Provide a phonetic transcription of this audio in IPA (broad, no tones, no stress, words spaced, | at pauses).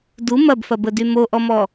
du mɐbfɐbədy moʔɔmɔ